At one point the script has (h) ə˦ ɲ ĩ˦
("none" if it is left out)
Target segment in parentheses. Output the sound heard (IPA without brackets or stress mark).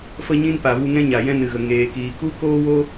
f